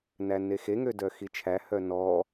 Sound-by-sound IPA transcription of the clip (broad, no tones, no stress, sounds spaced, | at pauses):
n æ n e x e ŋ ø d œ x i t͡ʃʰ æ h œ n ɔ